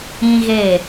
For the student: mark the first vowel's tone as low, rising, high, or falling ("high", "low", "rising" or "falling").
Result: high